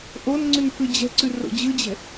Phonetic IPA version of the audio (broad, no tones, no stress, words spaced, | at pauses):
ʔon ŋ͡ǀʉnpʰɯd͡ʑɛ̤ǀʉ ro̰d͡ʑɯd͡ʑɛ̤